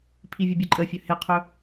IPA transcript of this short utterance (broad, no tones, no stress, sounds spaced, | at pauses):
pʰ i vʲ ɵ bʲ ɨ ǃʼ ə fʲ ɵ h e qʰ ɵ